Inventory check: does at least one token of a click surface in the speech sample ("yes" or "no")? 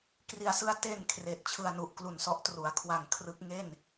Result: no